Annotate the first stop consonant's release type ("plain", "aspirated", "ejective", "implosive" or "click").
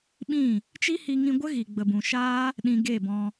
implosive